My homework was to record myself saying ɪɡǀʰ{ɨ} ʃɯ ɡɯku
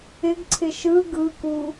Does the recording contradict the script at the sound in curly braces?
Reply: yes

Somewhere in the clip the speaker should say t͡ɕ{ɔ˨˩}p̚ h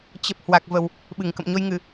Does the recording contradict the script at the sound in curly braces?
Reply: yes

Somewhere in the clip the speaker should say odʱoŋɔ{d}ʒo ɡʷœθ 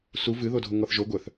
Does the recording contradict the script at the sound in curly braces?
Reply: yes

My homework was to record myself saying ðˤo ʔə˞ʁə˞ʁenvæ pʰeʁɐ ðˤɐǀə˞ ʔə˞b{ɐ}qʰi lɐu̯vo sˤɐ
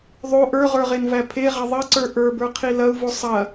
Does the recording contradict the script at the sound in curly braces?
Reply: yes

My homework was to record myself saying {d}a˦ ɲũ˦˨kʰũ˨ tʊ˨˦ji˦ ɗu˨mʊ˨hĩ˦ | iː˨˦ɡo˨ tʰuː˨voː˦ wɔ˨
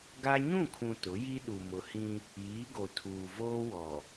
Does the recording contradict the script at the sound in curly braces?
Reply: yes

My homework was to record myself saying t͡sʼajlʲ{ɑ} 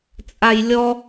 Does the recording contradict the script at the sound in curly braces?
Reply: yes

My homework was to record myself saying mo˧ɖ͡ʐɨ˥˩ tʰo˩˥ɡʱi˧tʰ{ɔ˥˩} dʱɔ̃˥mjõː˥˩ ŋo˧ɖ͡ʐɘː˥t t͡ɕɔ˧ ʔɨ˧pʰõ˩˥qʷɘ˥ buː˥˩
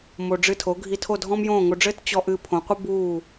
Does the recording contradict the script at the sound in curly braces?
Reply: yes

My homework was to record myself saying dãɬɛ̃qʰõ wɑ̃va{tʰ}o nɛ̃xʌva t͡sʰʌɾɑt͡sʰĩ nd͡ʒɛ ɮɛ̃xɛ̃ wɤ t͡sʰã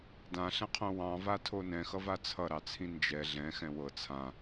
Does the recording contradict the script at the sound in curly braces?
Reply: no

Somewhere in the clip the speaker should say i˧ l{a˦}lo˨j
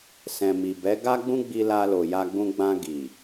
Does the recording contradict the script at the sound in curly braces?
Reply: yes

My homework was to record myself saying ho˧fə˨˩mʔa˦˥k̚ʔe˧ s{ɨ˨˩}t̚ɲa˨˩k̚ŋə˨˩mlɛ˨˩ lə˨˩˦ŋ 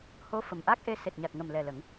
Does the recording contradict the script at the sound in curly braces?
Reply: yes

